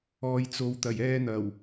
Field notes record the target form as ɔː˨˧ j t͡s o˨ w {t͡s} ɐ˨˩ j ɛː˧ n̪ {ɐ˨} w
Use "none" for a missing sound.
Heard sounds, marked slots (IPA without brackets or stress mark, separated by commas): t̪, ɐ˨˩